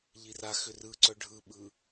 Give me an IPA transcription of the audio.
ʎiraxʏ rɯǀœ ɖʱɯɓɯ

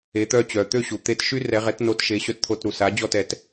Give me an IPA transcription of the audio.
e˩˥t̪œ˥˩t͡ɕœ˩ t̪ø˥˩ɕu˩ t̪e˧t ʃy˥rɛ˩˥ ʁɛ˩˥tno˧t ʃe˩˥ɕœ˧tt̪ʰo˧t ɾu˩sa˩˥d͡ʑɔ˥˩t ɛ˩t

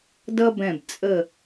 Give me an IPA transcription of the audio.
dʌ˦bɛ̃˧˩b t͡sʼə˧˩

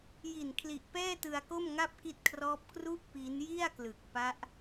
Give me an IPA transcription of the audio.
ji˨˩n kʰli˨˩ʔpɛː˥˩tɯ˧a̯ko˥˩m ŋa˥˩p̚ki˦˥t̚kʰrɔː˦˥p̚ kru˥˩ʔ pi˦˥n ji˥˩a̯klɯ˨˩k̚pa˦˥ʔ

